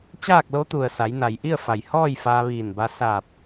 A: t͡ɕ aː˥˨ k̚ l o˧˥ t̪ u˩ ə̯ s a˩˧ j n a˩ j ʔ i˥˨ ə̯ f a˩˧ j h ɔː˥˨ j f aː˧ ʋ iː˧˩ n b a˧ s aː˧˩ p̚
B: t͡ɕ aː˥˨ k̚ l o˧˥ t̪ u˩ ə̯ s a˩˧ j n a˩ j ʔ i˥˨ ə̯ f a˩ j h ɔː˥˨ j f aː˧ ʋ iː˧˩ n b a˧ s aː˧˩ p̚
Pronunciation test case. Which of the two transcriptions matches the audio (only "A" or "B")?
B